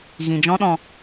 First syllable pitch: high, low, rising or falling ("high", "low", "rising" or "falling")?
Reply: low